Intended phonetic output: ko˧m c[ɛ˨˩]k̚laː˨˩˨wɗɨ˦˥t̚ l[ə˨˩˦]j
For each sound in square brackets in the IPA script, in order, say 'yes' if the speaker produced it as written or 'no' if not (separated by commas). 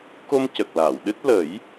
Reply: no, yes